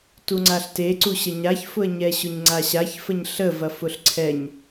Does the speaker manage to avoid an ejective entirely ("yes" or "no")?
yes